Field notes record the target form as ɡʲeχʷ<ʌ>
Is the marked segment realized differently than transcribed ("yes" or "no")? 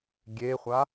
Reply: yes